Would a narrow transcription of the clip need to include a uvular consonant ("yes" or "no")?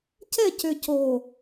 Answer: no